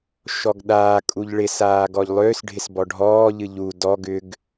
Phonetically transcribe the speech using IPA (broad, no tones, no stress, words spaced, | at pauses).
ʃɔɡɗaː kʼuʎɭɪ saːɡɔʎlˠʏːs ɖʱɪsbɔɖʱɔː ʎɨʎu dɔ ɡʏɡ